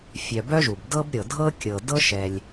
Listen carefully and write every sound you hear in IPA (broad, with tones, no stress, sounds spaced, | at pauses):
fʲ œ˨ b œ˥ ʒ u˩ b d ɤ˦ b ɾʲ ɤ˩ dʱ ɤ˥ kʲ ɤ˨ d ɤ˥ ʃ ɛ˨ lʲ